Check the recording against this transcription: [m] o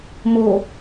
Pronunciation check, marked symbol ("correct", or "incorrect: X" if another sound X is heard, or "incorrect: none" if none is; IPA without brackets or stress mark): correct